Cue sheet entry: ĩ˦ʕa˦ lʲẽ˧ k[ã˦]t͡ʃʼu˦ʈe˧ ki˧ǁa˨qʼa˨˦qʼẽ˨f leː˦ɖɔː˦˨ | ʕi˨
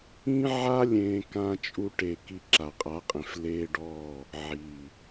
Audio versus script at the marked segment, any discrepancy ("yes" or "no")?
no